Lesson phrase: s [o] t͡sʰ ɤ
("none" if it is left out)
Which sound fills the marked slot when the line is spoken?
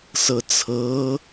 ɤ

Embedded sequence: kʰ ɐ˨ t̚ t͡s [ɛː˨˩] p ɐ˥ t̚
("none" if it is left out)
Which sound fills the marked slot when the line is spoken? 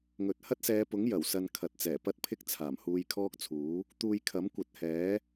ɛː˨˩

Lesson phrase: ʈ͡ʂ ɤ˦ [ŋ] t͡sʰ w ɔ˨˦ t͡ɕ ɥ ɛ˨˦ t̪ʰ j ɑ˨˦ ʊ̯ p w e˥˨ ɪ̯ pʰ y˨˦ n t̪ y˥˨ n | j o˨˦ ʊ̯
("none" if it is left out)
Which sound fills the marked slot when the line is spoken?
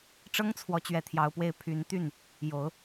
ŋ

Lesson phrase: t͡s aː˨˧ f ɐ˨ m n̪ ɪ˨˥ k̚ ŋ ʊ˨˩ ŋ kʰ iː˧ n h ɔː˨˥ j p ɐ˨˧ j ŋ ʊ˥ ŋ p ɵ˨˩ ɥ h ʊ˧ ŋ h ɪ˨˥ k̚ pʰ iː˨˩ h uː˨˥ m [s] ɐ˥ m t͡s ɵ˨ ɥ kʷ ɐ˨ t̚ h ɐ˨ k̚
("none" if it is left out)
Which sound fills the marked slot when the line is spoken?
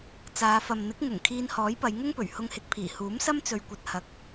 s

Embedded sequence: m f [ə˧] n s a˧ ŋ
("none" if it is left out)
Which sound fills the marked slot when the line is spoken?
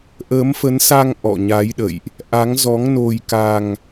ə˨˦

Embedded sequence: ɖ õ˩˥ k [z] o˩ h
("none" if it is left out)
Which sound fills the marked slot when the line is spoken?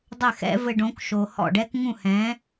ʃ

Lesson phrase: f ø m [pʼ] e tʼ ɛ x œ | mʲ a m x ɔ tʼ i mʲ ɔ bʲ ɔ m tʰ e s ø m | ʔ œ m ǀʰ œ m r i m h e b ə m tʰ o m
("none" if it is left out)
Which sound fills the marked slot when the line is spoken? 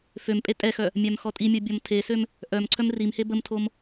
pʼ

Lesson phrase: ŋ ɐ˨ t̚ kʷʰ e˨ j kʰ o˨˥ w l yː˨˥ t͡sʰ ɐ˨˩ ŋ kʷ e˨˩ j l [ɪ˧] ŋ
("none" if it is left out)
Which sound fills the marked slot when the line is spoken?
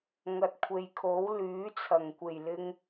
ɪ˧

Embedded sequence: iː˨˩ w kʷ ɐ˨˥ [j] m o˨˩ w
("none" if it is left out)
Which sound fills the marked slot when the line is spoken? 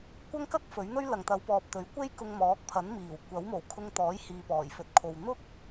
w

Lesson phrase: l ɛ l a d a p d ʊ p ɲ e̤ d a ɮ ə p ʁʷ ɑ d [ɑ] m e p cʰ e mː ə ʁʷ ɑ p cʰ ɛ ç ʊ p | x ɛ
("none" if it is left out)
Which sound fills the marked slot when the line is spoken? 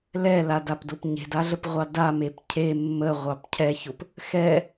a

